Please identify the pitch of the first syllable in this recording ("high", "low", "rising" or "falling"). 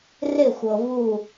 falling